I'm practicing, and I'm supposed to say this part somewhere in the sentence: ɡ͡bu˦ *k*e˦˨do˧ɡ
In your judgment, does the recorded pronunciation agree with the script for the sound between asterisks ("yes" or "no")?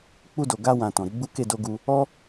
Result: yes